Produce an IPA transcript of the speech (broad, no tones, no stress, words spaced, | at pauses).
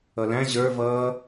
ʌlæ̃ ʑə˞ vʌː